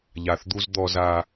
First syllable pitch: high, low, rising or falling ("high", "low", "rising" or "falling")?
low